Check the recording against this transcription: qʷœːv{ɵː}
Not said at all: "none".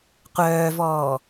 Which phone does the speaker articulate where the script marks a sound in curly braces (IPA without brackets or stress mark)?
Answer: ɔː